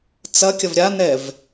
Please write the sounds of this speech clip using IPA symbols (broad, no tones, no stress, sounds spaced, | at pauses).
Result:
t͡s ɐ kʲ ɐ v ɾʲ a n ɛ v